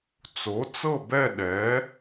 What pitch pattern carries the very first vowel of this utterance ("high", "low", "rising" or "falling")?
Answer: rising